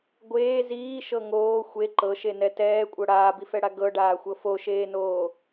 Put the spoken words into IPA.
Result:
ɡʷ eː z iː ʃ ɤ ŋ oː xʷ e ǃ ɤ ʃ e n ɛ t ɛː kʷʼ ɤ ɽ aː b i f ɛ ɽ a ɡ ɤ ɖ aː xʷ ɤ f o ʃ eː n oː

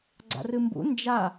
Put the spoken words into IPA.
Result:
ɡ͡ǀ a̰ r ɨ m b ṵ n d͡ʒ a

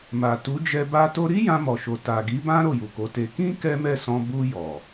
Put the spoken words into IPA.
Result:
m a˨ t u˨˦ d͡ʒ ɛ˧ b a˦ t o˦ ɾ i˦ j ã˧ m ɔ˨ ʃ o˨ t a˨ ɡ i˨˦ b ã˦ ɾ o˦˨ j u˨ k o˨˦ t e˧ k ĩ˦ k ɛ˦ m ɛ˦˨ s ɔ̃˧ b u˧ j ɔ˨

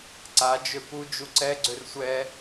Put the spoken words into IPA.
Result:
ǀ a d͡ʒ ø p u d͡ʒ u ǀ ɛ ɡ͡ǀ ø r sʷ ɛ

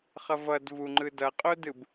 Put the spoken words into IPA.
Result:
χ ʌ v ʌ d v u ŋ͡ǃ ɯ d ʌ qʼ o d ɯ b

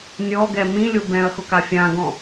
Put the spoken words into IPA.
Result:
nʲ ɔ ɡ ɛ m ĩ lʲ o b ɛ̃ ɐ̯ x ʊ k a fʲ ã ɡ ɔ̃

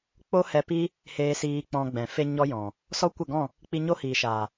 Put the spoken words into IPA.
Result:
k͡p o˦ h ɛ˧ p i˦ | h eː˧ s iː˧ k͡p ɔ̃˧ ɡ͡b ɛ̃˨ f e˦ ɲ ɔ˦ j ɔ̃˨ | s ɔ˦ kʷ ɛ˦˨ ɡ ɔ̃˦˨ | k͡p i˧ ɲ o˦ h iː˨ ʃ aː˨

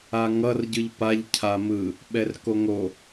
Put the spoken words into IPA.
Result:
a ŋ ʌ r ɟ ɯ ʎ p a ʎ cʰ a m ɯ | ɓ ɛ r k o ŋ o

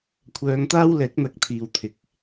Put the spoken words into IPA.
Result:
kʷʰ œː˨˧ ŋ t̪ aː˥ w l ɛː˨˥ k̚ n̪ ɐ˨ k̚ t̪ʰ iː˨ w t̪ʰ ɪ˨ k̚

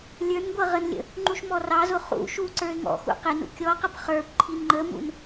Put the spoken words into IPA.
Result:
lʲ ə˞ n ɡʷ ʌ ʁ ə n lʲ ə̰ | ŋ͡ǃ u ʃ m ɔ r ɑ z ʊ χ ṵ ʃ u ǀ ə˞ ɪ̯ ŋ ɔ̰ x ṵ q ɪ n ṵ kʲ ɔ q ə p χ ə˞ p ǃʰ i n ŋ͡ǃ ə m ṵ n

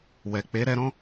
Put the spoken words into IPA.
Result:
w ɛ˨ k͡p e˨˦ ɾ ɛ˧ ɾ ɔ̃˦

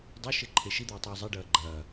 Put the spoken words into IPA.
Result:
dˤ o ʃ e ǃʰ e ʃ i d̪ o ɪ̯ tˤ ʉ ʊ̯ zˤ e ɖ ɐː ɡ͡ǃ ɐː

